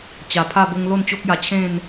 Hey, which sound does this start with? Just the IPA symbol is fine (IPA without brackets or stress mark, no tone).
t͡ɕ